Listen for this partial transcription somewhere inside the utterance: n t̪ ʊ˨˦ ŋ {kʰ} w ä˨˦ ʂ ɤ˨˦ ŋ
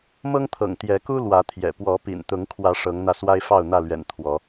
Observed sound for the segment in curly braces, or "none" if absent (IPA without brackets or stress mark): kʰ